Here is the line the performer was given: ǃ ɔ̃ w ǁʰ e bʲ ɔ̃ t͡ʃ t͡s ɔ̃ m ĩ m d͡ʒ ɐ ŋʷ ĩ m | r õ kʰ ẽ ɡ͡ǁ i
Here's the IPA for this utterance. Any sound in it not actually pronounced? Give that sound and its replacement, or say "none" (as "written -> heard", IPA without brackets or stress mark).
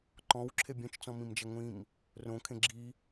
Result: none